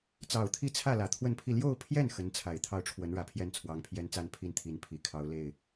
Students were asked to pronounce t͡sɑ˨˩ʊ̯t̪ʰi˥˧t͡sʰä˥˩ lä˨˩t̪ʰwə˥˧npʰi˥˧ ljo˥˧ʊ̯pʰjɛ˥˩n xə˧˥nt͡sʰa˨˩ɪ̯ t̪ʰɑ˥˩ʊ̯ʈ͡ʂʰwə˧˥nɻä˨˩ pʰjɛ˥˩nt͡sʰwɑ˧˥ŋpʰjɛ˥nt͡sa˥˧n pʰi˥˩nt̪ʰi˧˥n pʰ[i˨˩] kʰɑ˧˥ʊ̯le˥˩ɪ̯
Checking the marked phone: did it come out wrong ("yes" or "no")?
no